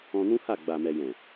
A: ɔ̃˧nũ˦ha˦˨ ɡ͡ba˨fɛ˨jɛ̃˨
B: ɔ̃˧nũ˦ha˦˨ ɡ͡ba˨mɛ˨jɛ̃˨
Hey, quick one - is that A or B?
B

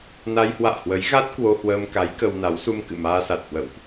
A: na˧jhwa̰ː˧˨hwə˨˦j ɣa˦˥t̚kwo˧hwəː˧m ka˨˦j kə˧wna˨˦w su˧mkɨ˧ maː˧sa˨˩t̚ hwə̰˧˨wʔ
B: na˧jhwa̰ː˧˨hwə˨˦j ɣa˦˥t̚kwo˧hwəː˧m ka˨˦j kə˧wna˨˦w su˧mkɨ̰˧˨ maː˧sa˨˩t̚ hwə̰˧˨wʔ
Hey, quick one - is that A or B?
B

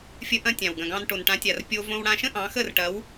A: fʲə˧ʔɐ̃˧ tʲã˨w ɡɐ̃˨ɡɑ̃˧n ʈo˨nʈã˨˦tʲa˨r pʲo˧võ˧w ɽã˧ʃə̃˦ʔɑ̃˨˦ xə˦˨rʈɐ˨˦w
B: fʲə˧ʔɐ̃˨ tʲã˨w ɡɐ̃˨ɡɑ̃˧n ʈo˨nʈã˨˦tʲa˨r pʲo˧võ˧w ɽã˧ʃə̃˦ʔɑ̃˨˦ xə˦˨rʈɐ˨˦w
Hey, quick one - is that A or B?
A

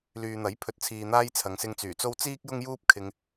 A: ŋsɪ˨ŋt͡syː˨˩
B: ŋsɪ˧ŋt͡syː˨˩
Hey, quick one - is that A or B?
B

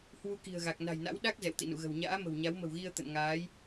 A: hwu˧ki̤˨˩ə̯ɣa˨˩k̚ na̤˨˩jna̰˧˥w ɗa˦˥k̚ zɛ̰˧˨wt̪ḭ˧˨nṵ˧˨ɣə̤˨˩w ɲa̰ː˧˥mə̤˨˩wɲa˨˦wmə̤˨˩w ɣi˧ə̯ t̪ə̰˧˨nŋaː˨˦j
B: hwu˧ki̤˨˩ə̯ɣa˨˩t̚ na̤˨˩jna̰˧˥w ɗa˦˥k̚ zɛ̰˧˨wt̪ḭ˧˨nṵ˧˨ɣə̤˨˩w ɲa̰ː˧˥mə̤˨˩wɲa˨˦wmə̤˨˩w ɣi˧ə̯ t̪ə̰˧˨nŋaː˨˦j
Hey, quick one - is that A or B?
A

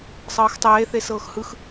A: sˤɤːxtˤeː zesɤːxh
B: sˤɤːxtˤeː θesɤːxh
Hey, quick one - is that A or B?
B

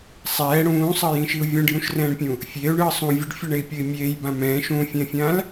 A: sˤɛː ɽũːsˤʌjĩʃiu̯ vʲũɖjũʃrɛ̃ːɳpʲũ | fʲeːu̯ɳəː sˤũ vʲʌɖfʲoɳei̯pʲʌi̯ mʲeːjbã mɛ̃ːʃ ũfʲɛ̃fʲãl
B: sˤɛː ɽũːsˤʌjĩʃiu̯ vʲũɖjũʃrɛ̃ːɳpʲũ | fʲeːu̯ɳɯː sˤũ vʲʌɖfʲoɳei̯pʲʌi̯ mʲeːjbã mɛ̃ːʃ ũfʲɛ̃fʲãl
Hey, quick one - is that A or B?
B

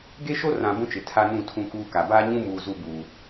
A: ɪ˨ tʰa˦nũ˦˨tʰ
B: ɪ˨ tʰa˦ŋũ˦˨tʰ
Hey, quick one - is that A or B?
A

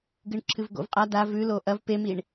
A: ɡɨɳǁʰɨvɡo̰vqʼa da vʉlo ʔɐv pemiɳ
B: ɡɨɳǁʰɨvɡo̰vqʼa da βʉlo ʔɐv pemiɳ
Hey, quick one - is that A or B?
A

